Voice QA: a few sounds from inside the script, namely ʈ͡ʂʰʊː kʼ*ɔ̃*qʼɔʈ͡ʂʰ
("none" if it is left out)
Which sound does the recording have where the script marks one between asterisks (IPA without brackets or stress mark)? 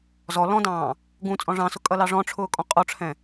ɔ̃